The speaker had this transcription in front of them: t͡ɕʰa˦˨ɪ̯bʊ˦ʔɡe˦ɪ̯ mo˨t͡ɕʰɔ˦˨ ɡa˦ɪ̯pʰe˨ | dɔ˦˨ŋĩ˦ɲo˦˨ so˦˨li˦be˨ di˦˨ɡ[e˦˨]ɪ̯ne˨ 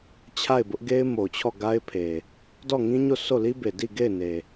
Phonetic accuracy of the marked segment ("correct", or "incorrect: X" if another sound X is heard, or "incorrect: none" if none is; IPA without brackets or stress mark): correct